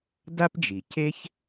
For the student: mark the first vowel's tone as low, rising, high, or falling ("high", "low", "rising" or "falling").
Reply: high